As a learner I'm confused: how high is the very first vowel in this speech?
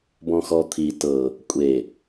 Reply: mid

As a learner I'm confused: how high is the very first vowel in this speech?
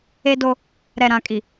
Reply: mid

